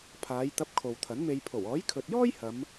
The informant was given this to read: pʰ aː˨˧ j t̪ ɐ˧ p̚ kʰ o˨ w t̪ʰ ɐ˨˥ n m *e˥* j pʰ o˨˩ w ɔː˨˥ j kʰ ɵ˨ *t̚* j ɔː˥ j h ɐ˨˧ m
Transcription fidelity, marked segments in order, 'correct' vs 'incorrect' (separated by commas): incorrect, correct